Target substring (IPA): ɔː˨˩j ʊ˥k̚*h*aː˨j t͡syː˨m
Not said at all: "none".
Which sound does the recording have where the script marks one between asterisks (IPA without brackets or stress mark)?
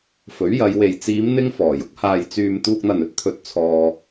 h